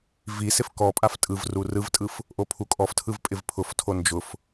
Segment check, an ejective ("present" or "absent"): present